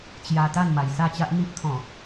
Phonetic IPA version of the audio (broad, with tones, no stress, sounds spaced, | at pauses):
t͡ɕ j a˧ t̪ a˥˧ n m a˨˩ j s a˥˧ t͡ɕ a˦ ʔ n̪ i˦ ʔ t̪ʰ ɔ̃˨˩